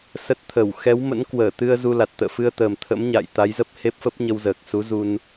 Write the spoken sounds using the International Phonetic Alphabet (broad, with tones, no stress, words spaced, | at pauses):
sə˦˥t̚t̪ʰə˧˩w xɛ˨˦wmə̰˧˥nkwəː˧˩ t̪ɨ˧ə̯ zu˧la˨˩t̚t̪ə̰ː˧˨ fɨ˧ə̯t̪əː˨˩m t̪ʰə̰˧˥mɲa̰˧˨j t̪a˨˦jzə˦˥p̚ he˦˥p̚fə˦˥p̚ɲə˧wzəː˨˩k̚ su˨˦zu˧n